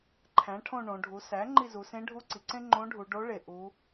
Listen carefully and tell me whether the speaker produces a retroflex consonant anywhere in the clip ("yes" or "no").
yes